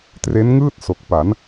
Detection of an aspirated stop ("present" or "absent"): absent